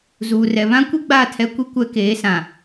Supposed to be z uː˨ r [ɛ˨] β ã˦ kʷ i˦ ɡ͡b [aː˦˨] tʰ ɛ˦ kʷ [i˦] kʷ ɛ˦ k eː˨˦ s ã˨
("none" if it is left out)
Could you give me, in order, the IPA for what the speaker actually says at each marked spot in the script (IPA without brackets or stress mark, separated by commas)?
ɛ˨, aː˦˨, i˦